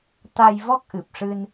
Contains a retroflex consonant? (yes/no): yes